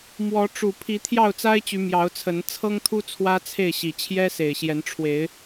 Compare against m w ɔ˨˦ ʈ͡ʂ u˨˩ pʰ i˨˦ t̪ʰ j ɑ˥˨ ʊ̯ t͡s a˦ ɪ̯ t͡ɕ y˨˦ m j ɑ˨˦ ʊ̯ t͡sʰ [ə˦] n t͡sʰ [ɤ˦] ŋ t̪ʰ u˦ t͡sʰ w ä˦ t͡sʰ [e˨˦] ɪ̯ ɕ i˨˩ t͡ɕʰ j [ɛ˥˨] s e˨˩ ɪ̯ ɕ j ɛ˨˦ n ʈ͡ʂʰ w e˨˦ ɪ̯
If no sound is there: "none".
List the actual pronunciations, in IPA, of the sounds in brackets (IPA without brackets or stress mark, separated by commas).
ə˨˦, ɤ˦, e˥˨, ɛ˦